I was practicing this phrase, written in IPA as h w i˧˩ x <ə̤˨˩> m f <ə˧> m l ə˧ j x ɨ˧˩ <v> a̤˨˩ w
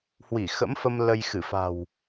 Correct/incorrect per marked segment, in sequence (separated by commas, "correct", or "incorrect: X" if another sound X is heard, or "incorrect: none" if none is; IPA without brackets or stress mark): incorrect: ə̰˧˥, correct, incorrect: f